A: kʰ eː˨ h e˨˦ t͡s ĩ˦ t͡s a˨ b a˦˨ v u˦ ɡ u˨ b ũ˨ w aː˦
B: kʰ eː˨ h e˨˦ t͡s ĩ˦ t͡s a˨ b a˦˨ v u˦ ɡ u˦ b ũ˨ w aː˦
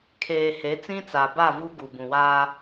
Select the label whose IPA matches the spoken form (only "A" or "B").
A